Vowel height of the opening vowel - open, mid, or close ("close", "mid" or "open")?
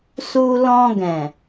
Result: close